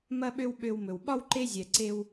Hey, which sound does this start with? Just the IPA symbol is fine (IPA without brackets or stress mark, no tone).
m